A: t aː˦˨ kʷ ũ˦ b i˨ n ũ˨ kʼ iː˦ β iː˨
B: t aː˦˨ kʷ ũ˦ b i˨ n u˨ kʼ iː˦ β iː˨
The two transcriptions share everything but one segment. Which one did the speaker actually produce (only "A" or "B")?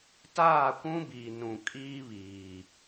A